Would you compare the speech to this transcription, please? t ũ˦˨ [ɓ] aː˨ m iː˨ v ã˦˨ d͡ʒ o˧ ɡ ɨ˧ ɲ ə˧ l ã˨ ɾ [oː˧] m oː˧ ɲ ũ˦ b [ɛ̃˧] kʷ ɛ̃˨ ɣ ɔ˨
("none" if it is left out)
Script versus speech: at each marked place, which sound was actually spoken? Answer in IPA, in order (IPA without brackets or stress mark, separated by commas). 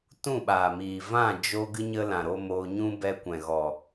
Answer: ɓ, o˧, ɛ˧